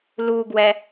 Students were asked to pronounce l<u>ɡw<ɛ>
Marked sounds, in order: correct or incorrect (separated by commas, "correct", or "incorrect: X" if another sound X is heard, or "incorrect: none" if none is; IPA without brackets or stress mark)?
correct, correct